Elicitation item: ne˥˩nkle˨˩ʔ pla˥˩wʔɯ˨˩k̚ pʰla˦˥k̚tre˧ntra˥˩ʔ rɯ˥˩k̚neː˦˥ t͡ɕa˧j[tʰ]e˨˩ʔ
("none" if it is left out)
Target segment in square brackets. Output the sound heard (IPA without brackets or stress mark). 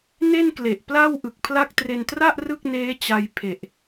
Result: pʰ